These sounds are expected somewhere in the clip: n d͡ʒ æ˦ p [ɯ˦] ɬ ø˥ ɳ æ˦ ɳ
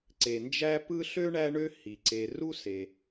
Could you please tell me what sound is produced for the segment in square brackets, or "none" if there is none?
ɯ˦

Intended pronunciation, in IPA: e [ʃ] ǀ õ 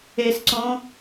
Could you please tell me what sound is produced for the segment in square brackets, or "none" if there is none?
s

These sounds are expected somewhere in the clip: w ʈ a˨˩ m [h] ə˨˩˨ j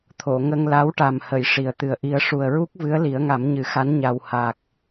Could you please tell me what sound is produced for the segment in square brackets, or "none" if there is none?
h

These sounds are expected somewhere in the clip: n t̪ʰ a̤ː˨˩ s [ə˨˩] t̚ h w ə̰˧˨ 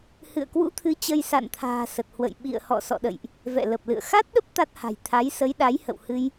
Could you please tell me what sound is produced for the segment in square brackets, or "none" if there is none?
ə˨˩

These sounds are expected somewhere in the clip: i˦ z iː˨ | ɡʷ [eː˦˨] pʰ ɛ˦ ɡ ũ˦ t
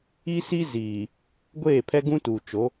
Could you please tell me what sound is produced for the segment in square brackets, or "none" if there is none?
eː˦˨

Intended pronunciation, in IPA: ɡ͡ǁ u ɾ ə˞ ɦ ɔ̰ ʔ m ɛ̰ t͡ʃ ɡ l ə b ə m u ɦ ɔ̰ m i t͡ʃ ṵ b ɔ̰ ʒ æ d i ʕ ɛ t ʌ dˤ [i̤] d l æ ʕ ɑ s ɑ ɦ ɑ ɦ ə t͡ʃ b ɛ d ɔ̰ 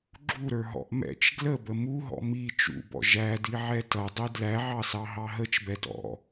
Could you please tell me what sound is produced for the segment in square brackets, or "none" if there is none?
i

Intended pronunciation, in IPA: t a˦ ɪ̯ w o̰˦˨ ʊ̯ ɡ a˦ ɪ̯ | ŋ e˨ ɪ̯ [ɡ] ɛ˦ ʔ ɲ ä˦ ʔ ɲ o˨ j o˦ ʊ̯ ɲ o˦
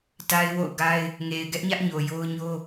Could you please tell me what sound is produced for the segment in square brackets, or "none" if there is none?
ɡ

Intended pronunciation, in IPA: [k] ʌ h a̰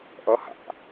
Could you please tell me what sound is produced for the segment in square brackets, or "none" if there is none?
ʔ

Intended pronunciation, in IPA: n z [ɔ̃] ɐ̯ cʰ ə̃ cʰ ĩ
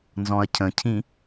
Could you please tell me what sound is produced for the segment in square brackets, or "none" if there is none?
ɔ̃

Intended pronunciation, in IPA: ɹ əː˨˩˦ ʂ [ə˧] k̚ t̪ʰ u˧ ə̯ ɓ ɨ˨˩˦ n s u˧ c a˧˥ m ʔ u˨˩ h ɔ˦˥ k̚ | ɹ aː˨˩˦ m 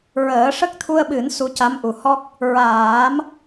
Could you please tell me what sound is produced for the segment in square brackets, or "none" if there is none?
ə˦˥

